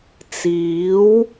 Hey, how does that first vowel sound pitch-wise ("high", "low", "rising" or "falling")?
rising